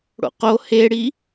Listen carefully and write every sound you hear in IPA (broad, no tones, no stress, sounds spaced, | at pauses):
ɽ o̰ q o h e ɽ i